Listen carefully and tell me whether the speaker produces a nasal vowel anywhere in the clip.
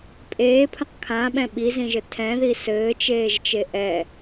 yes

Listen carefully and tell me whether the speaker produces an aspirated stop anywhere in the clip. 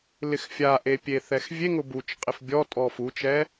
no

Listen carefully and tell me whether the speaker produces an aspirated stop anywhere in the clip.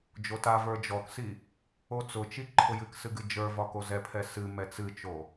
yes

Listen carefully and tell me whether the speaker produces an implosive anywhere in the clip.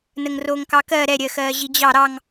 no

